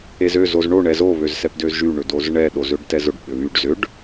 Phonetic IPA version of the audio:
ezø zozɳo ɳɛzo βøzsɛpdøzʒy ɳʏdozɳɛ ɗozøɖtɛzʊɖ ɓʏβyɖ zʏɖ

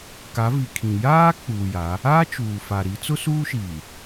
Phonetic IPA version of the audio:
ka˨˦vi˨kʰĩ˨ jaː˦ k͡puː˨ja˨˦ | aː˦ t͡ʃuː˨fa˨ɾi˨˦ t͡sʊ˦suː˦ʃiː˨

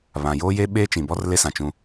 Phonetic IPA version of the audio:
βã˨joː˦je˦ ɓeː˦t͡ʃĩ˨bɔ˦r le˦sã˨t͡ʃũ˦

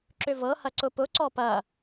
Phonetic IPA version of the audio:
ǁʏvɤhɐ ǀʊpʊǀɔ pɐ

